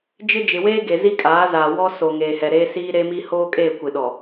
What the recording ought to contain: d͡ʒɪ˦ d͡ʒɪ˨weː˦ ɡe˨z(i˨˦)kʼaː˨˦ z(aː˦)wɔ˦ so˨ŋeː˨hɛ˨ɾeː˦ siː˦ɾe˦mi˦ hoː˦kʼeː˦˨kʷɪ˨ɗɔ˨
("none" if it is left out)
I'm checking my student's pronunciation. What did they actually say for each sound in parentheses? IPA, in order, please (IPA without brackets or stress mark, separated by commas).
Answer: i˦, aː˨